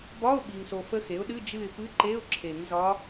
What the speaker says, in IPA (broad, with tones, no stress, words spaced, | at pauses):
bɒ˧˥˧ʊ̯ ɓi˨ŋso˨fə˧˥ xe˩˥ʊ̯ɗɨ˧˥˧ d͡ʒɨ˦˨ɪ̯pɨ˧˥˧ǃe˧˥˧ʊ̯ ǁʰe˨˩˦ŋzɒ˧˥